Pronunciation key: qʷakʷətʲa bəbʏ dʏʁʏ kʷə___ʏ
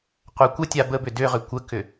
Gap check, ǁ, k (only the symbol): k